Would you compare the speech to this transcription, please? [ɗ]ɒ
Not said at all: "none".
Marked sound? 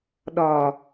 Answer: ɗ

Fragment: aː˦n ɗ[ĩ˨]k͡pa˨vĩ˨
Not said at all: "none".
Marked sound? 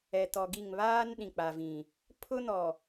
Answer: ĩ˨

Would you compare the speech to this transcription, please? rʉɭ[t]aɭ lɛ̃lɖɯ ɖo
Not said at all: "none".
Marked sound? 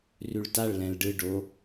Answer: t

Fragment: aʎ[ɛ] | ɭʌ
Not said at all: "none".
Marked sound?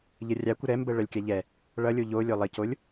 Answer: ɛ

